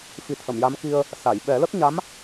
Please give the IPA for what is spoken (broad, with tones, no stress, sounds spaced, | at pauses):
f i˨˩˦ t̪ʰ ə˨˩˨ m j a˧˥ m k i˧ ə̯ | s a˨˩˨ j ɓ ɛ˨˩˦ l ə˦˥ k̚ ɲ a˧˥ m